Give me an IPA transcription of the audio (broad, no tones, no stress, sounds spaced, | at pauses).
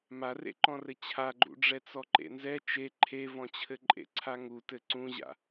m a r ḛ ǃ ɔ̃ r ɘ t͡ɕʰ a ɡ͡ǃ ṵ ɖ͡ʐ ɛ t͡s ɔ ǃ ḛ n z ɛ t͡ʃ e ǃʰ e v ɔ̃ t͡ɕʰ ɘ ǃʼ ḛ ǀʰ a ŋ u t ɘ ǀ ũ ʑ a̰